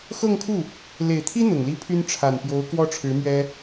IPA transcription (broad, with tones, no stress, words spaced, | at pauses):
xɤ˥˧ŋkʰu˥˩ | le˨˩ɪ̯t̪ʰi˥ n̪ʊ˨˩ŋli˥pʰy˥n ʈ͡ʂʰa˨˩npjo˧˥ʊ̯ kwɔ˥ʈ͡ʂʰɻ̩˧˥mɥɛ˥